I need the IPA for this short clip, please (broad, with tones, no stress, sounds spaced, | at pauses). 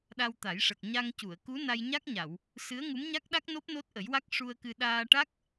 ɗ a˧ w t̪ a˨˩˦ j ʂ ə˨˩ k̚ ɲ a˧ ŋ c u˨˩˨ ə̯ k u˧˥ n a˧ j ɲ a˦˥ k̚ ɲ a˨˩˨ w | s ɨ˧˥ ə̯ ŋ u˧˥ m ɲ a˦˥ k̚ ɗ a˦˥ k̚ n o˦˥ p̚ n o˦˥ t̚ ʔ ə˨˩˦ j w a˦˥ k̚ ʂ u˧ ə̯ k ɨ˧ ɗ aː˧ ʈ a˦˥ k̚